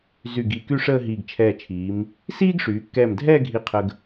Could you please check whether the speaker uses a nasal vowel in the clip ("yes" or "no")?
no